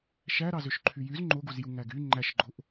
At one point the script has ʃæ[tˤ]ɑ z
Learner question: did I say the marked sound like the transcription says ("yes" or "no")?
no